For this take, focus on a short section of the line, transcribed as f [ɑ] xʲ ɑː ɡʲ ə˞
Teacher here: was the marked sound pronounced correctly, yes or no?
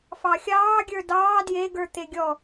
yes